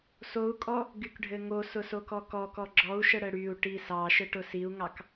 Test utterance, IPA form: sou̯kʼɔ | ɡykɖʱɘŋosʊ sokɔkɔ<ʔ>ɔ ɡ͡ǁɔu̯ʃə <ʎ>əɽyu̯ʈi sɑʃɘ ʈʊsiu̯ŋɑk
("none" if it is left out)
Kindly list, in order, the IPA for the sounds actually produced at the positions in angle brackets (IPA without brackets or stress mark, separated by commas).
k, ɽ